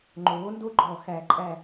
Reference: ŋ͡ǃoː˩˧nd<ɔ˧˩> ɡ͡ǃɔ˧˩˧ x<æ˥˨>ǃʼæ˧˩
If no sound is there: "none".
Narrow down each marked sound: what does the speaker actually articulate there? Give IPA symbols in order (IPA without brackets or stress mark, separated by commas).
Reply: o˧˩, æ˩˧